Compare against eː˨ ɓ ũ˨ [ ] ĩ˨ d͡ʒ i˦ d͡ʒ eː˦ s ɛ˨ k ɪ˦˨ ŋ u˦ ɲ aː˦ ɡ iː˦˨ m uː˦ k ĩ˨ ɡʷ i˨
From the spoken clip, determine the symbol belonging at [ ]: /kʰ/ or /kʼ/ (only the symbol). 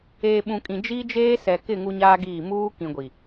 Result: kʼ